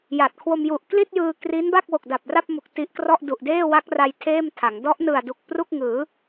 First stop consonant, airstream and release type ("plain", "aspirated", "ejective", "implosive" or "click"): plain